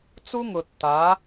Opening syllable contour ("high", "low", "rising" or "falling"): high